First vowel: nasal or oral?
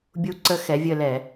oral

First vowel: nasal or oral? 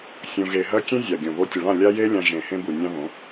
nasal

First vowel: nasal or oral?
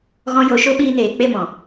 nasal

